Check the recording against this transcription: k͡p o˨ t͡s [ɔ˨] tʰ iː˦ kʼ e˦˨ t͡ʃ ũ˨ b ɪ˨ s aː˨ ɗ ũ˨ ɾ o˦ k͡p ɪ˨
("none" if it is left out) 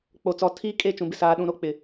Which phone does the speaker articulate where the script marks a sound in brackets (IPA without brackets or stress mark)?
ɔ˨